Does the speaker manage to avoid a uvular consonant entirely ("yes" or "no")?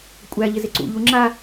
yes